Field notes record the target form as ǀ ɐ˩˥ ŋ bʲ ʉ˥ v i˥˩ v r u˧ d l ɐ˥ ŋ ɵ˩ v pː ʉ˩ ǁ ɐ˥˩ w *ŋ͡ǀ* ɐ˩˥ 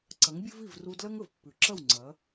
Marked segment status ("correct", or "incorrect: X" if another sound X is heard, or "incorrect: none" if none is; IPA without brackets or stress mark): correct